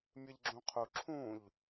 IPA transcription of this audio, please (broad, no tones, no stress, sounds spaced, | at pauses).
mʲ ɨ ʎ ɡ͡ǁ ũ qʰ u ǁʰ ũ ʎ